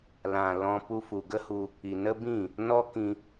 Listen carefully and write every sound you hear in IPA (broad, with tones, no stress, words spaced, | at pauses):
lã˨ lɔ̃˧ pu˧fu˨ ɡə˦hu˧ | i˨nə˦bĩ˦˨ | nɔ˦kĩ˧